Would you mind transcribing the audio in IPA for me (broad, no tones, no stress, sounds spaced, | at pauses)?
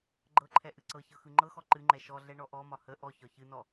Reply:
ɡ͡ǃ ɤ ǃʰ ɛ ʔ ɨ ǀ ɤ ç ɤ x ɯ ŋ͡ǃ ɤ x ɔ ǃ ɨ ŋ͡ǃ ɛ ʃ ɔ ɮ ɛ ɳ ɔ ʔ ɔ m ɒ h ə ʔ ɔ ç ɒ ç ɨ n ɔ